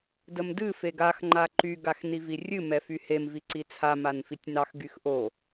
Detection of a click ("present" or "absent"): present